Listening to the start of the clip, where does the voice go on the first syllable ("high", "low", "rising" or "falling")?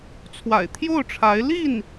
low